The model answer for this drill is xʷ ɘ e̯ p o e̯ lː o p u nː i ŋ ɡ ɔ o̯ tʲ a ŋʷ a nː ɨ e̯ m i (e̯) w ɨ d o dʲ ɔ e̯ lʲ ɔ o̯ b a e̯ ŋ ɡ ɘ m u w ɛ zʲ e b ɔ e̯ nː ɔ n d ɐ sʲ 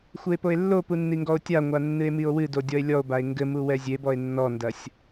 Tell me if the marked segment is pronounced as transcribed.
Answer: no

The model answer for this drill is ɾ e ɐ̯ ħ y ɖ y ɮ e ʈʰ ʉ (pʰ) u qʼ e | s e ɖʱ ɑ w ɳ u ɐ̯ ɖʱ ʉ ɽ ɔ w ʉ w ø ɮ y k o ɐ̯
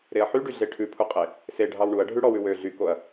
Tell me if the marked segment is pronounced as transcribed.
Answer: yes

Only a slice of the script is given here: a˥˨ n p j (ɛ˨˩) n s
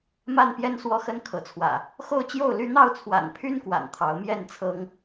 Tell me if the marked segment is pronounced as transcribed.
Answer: no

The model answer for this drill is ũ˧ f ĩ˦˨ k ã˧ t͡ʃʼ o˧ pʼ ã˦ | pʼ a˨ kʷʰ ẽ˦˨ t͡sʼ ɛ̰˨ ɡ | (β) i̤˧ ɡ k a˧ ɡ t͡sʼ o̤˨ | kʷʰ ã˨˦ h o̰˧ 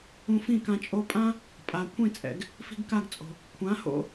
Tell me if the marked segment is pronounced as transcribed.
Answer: no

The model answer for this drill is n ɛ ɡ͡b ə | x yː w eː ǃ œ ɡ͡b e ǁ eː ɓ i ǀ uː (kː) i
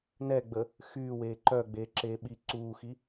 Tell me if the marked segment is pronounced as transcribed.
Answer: no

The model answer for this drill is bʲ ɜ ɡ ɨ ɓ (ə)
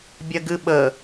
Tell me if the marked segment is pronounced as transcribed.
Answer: yes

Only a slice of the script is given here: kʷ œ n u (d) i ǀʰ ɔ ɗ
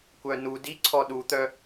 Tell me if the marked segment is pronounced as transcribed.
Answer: yes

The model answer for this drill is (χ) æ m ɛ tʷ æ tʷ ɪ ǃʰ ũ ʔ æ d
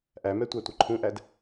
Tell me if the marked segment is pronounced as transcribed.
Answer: no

